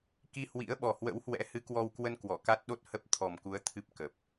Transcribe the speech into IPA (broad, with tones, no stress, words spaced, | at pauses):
ki˧ hwḭ˧˥ə̯ɓɔ˨˩hwə̰˧˥whwɛ̰˧˥ hɨ˨˦kwɔ˧wkwə˧n kwɔ˧˩ka˦˥t̚ɗo˦˥t̚ hə˦˥p̚ t̪ʰɔ˨˩mku˨˦ə̯ t̪ʰɨ˦˥p̚kə˨˩p̚